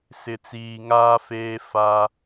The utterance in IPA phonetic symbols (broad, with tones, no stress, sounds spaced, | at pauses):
s ɪ˨ t͡s iː˨ ŋ aː˦ f eː˦ f a˦